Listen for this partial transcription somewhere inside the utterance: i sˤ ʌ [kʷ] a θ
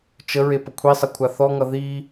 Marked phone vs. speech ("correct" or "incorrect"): incorrect